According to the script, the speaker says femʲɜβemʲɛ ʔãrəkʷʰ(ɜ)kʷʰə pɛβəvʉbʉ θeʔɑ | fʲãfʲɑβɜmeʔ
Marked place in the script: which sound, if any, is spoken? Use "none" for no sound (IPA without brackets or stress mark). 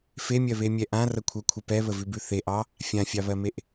ɜ